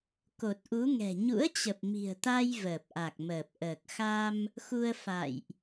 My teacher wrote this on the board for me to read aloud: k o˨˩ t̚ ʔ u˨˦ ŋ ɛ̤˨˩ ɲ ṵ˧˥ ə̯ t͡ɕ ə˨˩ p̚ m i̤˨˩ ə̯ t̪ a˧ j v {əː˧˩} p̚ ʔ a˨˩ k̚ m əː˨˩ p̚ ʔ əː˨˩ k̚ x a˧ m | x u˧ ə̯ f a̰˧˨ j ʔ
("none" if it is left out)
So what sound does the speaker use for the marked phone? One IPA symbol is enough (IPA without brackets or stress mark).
əː˨˩